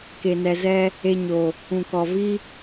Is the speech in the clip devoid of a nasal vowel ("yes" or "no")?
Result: no